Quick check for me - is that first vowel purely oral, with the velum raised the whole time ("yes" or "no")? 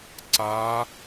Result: yes